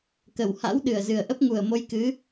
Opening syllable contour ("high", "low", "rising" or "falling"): low